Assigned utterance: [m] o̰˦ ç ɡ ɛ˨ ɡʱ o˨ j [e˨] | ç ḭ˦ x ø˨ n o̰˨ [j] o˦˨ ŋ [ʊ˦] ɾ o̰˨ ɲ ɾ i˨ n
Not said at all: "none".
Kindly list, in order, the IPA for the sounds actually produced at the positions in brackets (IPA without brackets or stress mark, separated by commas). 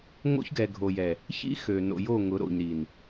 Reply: ŋ, ɛ˨, j, ʊ˨˦